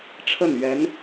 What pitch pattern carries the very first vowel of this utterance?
falling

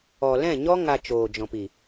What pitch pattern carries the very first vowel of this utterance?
low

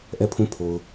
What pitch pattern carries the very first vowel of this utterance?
falling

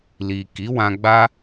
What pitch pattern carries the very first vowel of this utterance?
low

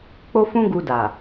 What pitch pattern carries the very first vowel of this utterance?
high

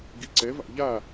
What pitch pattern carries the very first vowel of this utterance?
rising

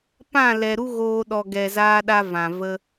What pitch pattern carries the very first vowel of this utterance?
falling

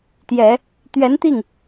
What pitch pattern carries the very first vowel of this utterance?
low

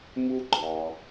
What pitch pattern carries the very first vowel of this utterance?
high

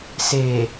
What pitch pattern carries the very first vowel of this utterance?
low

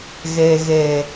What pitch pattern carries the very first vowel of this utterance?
low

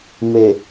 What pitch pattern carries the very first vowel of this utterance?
low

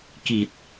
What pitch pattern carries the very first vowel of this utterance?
low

